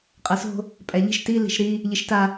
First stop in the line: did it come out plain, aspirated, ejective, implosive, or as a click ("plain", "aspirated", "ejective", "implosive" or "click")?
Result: ejective